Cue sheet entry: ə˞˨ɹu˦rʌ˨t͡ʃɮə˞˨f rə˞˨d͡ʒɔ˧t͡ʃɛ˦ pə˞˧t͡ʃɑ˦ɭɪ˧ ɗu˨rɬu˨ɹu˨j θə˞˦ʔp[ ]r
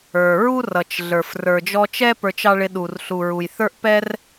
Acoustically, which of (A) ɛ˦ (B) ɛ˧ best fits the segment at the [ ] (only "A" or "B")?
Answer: A